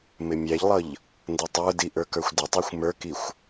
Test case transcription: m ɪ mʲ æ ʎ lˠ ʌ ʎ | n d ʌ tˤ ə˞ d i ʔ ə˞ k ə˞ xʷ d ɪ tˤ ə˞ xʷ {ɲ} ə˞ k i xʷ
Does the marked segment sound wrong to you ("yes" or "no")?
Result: yes